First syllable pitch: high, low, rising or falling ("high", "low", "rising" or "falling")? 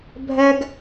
high